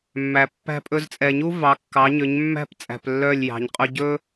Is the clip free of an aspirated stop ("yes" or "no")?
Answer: yes